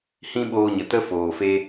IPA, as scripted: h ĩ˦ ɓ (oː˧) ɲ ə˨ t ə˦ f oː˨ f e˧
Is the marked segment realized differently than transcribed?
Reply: no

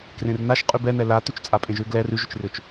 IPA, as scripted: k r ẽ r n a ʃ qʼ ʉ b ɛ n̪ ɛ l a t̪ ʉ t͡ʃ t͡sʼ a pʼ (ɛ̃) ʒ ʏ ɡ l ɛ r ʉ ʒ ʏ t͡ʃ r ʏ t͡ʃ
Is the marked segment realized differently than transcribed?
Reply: yes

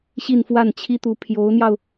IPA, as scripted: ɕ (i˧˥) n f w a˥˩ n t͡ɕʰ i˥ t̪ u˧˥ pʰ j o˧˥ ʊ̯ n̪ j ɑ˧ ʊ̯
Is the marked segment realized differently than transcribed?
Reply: yes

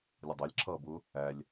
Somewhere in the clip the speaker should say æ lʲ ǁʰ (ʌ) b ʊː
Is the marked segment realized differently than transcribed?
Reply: yes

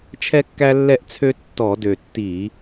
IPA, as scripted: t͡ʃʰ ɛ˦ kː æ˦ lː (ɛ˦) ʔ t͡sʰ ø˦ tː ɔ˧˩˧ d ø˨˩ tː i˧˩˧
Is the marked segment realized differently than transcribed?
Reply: no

